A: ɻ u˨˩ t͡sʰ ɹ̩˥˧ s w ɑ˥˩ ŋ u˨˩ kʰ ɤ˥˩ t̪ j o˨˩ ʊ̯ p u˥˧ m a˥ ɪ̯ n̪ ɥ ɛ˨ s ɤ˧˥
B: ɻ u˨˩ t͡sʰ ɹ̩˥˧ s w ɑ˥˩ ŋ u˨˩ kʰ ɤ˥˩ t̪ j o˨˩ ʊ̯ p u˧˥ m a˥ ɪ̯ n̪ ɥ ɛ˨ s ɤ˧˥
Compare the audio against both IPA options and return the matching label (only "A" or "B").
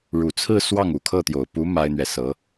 B